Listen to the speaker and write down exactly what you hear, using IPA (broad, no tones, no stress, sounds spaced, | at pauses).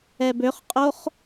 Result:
ɛ b ø χ qʼ o χ